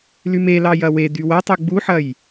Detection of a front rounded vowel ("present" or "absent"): present